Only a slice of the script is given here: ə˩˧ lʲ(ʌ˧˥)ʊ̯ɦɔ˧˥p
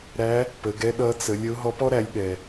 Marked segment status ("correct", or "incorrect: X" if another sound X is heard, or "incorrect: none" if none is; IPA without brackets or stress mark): incorrect: ə˧˥